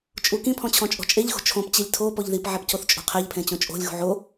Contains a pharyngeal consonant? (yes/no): yes